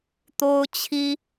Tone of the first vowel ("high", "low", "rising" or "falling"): high